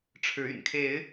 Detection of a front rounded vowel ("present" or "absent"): present